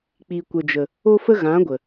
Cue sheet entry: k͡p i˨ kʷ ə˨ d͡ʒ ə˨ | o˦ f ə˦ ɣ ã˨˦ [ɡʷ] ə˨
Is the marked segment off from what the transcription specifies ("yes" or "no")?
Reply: no